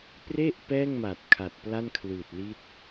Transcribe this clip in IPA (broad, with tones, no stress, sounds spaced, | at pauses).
p r e˥˩ ʔ p ɛː˥˩ ŋ m a˨˩ t̚ kʰ a˨˩ t̚ p l a˥˩ n kʰ l ɯː˨˩ t̚ l i˦˥ t̚